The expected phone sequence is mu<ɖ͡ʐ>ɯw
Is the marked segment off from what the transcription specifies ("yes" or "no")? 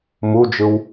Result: yes